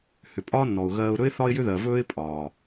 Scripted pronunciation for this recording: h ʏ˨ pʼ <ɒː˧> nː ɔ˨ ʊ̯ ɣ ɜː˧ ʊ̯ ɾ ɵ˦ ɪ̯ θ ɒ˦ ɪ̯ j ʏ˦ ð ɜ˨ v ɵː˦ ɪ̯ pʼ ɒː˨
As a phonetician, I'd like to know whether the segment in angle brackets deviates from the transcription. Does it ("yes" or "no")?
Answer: yes